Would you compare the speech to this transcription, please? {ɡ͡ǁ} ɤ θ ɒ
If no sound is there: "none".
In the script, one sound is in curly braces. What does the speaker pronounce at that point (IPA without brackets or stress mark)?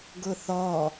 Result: ɡ